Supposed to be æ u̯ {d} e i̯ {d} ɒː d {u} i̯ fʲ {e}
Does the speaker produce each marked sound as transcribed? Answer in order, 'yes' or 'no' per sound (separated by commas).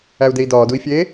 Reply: yes, yes, yes, yes